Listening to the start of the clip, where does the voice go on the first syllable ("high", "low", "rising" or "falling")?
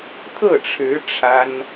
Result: falling